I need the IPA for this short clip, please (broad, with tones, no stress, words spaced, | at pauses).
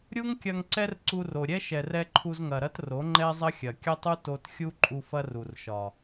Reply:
ɾʲu˦ŋkʲɐ˧ŋ ǀɛ˦rǀu˧ro˨ɾʲɛ˦ ʃɛ˨rɛ˧ ǃʰu˧zŋɐ˨ɾɐ˦t ro˨˦ŋ͡ǃɛ˦zˤɐ˦ xʲɐ˨kʲɐ˦tˤu˦ to˧txʲu˦ǃʼu˧ fɐ˦ru˨rʃɒ˨